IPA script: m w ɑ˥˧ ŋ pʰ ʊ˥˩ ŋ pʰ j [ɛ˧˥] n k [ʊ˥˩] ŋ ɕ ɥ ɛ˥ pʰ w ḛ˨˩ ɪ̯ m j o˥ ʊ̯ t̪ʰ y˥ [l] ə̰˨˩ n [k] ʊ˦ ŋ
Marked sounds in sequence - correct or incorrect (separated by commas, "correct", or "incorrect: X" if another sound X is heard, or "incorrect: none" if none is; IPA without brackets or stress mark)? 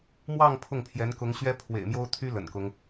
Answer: correct, incorrect: ʊ˧˥, correct, correct